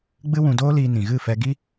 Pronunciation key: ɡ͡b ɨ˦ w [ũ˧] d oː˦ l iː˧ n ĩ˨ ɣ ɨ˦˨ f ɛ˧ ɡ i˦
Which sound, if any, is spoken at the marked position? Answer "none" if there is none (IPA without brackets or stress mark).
ũ˧